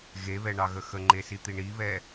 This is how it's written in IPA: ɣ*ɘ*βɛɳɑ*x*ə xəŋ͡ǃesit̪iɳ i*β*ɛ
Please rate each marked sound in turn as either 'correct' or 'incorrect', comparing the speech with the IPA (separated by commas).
incorrect, incorrect, correct